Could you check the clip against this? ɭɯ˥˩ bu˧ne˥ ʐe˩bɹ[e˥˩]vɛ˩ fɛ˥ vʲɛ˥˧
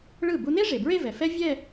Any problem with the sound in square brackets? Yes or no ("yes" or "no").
yes